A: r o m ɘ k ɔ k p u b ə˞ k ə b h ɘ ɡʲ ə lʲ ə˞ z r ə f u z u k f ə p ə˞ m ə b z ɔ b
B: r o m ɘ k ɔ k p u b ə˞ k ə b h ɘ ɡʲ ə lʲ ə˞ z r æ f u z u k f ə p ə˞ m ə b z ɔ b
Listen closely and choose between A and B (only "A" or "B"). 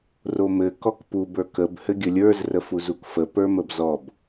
A